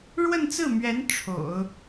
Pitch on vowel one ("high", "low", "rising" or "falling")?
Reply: falling